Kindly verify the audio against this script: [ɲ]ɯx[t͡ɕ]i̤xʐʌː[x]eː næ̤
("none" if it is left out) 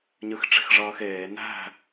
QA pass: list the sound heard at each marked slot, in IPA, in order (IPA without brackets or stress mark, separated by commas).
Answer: ɲ, ʈ͡ʂ, x